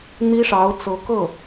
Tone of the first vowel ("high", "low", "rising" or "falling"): high